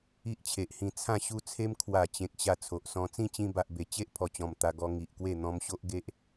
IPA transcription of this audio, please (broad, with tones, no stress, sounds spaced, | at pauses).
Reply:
i˦ ʔ t͡ɕʰ e˨ ʔ h ĩ˧ t͡sʰ ã˥˧ ɕ u˦ t͡sʰ e˦ m kʰ w a˨˩ t͡ɕ ẽ˨ k̚ ɕ a˧ t͡sʰ o˨ ʔ s ɔ̃˧ t͡s ĩ˥˧ t͡ɕ ĩ˧ b a˨ ʔ b e˨˩ t͡ɕ e˦ ʔ pʰ ɔ˨˩ t͡ɕ ɔ̃˨˩ m t̪ a˧ ɡ ɔ˧ ŋ i˨ ʔ k w e˥˧ n̪ ɔ̃˧ m ɕ o˦ ʔ ɡ e˦ ʔ